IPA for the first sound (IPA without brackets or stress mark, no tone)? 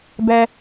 b